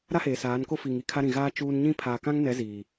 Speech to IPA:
ɾ a˦ h eː˨ s aː˨˦ n k o˦ f i˨ ŋ i˦ kʰ a˦ ɾ ĩ˨ ɣ aː˦ t͡ʃ uː˦ n ɲ ĩ˦ pʰ aː˨ k ã˦ ŋ n ɛ˨˦ z iː˨

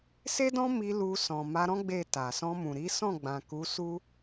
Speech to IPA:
s e˦ d ɔ̃˦ m i˧ l u˧ s ɔ̃˨ m a˧ ɾ ɔ̃˦ ɡ͡b e˦˨ t a˨ s ɔ̃˧ m ũ˨ ɾ i˨˦ s ɔ̃˦˨ ɡ͡b ã˨ k u˨˦ s u˦

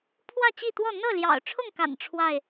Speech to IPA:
pʰ w ä˥˨ t͡ɕ i˥˨ t̪ w ɔ˥˨ n̪ ɤ˥˨ l j ɑ̰˨˩ ʊ̯ ʈ͡ʂʰ ʊ˥˨ ŋ k a̰˨˩ n ʈ͡ʂʰ w a˥˨ ɪ̯

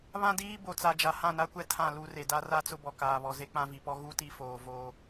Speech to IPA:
β ã˦ d iː˦ b o˨ t͡s a˨ d͡ʒ a˨ h ã˦˨ n a˦ kʷ ɛ˦ tʰ ã˦˨ l u˦ r e˨ d a˦ r a˦ t͡s ʊ˦ b ɔ˨ k aː˨ β ɔ˨ z e˦ k͡p ã˦ v i˨ p ɔ˦ ɣ u˦ t i˦ f oː˨ v oː˦

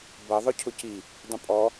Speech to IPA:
b ʌ ðˤ ʊ cʰ ʊ c i | dˤ ə̃ pʼ ɔ

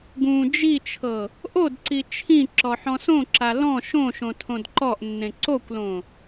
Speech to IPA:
ɡ ũ d͡ʒ i t͡ʃʰ ɤ | ʔ o d ǀ i t͡ʃʰ ĩ ǁ ɔ ħ ɔ̃ s õ ǁ a l ɔ̃ ʃ õ ʃ õ tʰ õ d ǃ ɔ ʔ nː ẽ ǀ o kʷ l õ

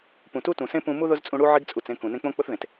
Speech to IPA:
p ũ˨ t u˦ t ũ˨ s ẽ˦ p ũ˧ m u˦ ð ʊ˦ z t͡sʼ ũ˧ ɽ u˦ ʕ i˦ ɡ t͡sʼ u˨ t͡s ẽ˧ k ũ˨ n ẽ˧ k͡p õ˦ k͡p ʊ˦ θ ð ẽ˨ t

